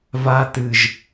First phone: v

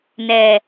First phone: n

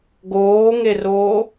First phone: ɡ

